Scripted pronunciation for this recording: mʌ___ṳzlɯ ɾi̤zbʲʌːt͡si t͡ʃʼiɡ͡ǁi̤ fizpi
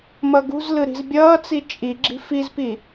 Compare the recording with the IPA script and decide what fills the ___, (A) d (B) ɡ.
B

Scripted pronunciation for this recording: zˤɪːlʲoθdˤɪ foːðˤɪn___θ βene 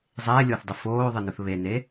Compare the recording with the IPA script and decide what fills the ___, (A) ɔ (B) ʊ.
B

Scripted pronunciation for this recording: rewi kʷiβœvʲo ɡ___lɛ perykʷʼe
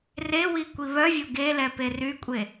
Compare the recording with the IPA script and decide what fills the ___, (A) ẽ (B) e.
B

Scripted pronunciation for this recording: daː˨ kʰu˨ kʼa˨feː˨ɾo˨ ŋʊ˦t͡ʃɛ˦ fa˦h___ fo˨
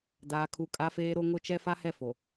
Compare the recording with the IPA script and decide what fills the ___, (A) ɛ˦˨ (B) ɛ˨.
A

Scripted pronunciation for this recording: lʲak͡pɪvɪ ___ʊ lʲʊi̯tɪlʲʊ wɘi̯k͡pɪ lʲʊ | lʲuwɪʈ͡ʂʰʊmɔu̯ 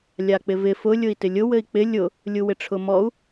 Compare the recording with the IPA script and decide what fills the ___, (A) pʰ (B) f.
B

